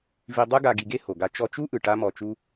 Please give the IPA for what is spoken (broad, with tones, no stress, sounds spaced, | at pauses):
v i˧ dˤ ɯ˥ ɡ a˧ ɡ i˧ ɡ e˥ h o˩ ɡ a˧ t͡ʃ ɔ˧ t͡ʃ u˥ ʔ ɯ˩ ʈ a˧ m ɔ˧ t͡ʃ u˥